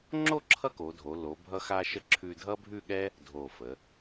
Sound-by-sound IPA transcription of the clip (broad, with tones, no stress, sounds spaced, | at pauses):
ŋ͡ǁ o˥˧ ǁʰ ʌ˥ k o˩˧ dʱ o˩˧ l o˩˧ bʱ ʌ˧ x a˧ ʃ ə˧ ǁʰ ʉ˧ dʱ ʌ˥ bʱ ʉ˥˧ ɠ ɛ˥ | dʱ o˧˩ f ə˩˧